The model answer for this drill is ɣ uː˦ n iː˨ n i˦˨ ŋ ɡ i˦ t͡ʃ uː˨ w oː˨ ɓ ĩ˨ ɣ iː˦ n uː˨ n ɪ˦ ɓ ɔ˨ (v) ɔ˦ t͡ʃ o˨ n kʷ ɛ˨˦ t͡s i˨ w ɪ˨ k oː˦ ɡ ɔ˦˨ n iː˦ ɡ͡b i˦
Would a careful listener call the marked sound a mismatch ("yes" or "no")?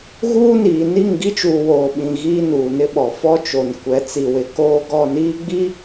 yes